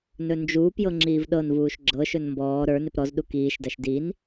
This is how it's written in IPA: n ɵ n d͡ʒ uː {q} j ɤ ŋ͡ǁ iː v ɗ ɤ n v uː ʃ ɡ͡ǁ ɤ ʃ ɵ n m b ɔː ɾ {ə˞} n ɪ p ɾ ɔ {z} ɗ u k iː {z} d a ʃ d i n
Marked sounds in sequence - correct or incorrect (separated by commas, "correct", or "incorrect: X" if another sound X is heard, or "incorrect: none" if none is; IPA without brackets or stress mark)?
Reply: incorrect: p, correct, correct, incorrect: ʃ